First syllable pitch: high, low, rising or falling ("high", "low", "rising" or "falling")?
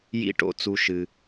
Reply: high